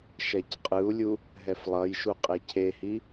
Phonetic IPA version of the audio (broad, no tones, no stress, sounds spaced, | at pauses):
ʃ ɛ c qʼ ɯ u̯ lʲ u | ɦ ɛ f lˠ ʌ j ʃ u qʼ e cʰ e h i